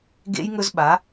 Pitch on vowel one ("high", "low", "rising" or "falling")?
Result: high